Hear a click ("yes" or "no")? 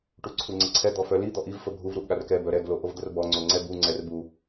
yes